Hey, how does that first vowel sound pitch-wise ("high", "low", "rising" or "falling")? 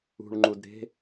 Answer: low